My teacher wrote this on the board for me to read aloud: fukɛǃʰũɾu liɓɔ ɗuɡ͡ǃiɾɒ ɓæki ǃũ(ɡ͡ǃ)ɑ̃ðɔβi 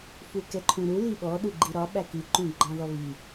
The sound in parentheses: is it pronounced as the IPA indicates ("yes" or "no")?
yes